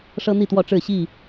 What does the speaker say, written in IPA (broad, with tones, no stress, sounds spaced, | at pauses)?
ʂ ɤ˦ n̪ i˥˨ t̪ w ɔ˥˨ ʈ͡ʂ ɻ̩˥˨ ɕ i˥˨